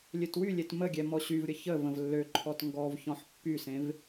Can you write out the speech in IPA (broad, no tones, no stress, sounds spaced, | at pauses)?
lʲ ø t w y lʲ e t m ə ɡʲ ɛ m ɔ ɕ y v ɾʲ ə ç ə v ə̃ v lː ø ǃʰ ɔ t ŋ ɡ ɔ v ç ɔ̃ ħ pː y s ẽ v